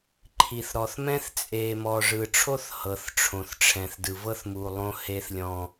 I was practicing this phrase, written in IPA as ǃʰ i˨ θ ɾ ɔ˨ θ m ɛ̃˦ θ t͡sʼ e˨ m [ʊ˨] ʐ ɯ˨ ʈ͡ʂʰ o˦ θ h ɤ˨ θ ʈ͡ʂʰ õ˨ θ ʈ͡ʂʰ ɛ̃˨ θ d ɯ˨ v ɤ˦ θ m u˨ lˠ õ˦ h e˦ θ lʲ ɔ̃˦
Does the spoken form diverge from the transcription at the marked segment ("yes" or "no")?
yes